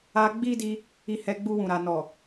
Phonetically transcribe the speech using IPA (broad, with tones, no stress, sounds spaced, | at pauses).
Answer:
a˧ ɡ͡b i˦ d i˧ | i˧ h ɛ˧ ɡ͡b u˧ w ũ˨ ɾ a˨ n ɔ˨